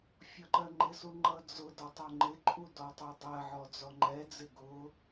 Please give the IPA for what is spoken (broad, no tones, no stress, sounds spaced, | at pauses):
fʲ ɒ ǃ ɜ ŋ͡ǃ ɪ s u ŋ͡ǃ ʌ d͡z ʊ d ɒ tˤ ʊ ŋ͡ǃ ɪ ǃʼ u d ɔ tˤ u dˤ ɜ ʕ ɔ d͡z ɔ ŋ͡ǃ ɛ d͡z ɪ ɡ ʊ